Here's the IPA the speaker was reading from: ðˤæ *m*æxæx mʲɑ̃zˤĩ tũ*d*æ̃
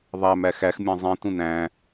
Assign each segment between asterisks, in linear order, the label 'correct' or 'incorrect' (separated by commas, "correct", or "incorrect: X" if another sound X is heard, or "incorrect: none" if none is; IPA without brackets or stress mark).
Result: correct, incorrect: n